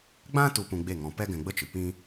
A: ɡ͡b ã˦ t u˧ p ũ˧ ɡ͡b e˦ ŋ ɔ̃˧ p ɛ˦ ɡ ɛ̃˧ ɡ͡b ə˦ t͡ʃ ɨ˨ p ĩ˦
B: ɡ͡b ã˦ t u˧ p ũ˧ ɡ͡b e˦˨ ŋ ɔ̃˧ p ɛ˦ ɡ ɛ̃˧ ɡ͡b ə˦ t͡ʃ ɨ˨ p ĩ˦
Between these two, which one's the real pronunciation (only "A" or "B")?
B